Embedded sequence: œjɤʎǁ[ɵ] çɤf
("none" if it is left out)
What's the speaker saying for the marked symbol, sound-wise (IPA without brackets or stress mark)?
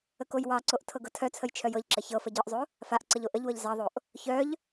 ə